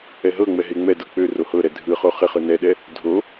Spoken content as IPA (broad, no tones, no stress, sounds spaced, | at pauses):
ɛ ɦ ɤ ŋ͡m ɛ ɦ e ŋ͡m ɛ d ɤ k͡p ø r o h ɤ ɾ ɛ dʱ ɯ χ o χ ɪ χ ɯ n ɛ ɗ ɛ | dʱ o